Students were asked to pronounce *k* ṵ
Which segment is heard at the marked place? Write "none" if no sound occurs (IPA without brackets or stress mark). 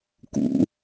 k